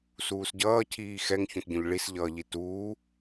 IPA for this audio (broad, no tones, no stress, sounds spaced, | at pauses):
s uː s ɟ ʌː cʰ iː x ɛ ŋ ç õ t ɟ õ ʎ ɭ i s ʎ ʌː ʎ i t uː